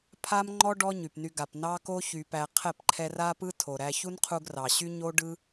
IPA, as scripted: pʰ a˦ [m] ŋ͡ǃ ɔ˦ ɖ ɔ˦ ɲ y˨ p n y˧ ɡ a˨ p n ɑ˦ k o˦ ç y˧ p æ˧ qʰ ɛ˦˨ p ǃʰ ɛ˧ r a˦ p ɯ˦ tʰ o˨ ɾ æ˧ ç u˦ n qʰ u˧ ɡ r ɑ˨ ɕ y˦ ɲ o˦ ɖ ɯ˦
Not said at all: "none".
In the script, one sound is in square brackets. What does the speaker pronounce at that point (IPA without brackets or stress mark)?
m